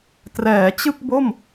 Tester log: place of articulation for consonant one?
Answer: alveolar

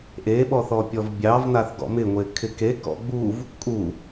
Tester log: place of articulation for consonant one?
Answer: glottal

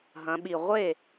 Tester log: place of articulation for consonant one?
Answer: glottal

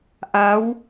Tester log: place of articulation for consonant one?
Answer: glottal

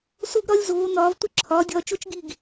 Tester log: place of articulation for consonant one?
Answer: alveolar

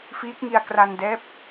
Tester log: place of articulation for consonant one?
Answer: labial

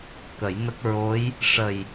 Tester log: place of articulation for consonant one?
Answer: velar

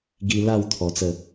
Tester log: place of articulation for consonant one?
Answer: velar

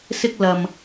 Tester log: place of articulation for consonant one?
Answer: alveolar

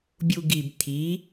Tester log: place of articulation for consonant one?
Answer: labial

